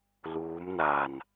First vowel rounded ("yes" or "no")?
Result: yes